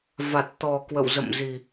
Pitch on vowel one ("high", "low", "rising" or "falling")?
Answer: low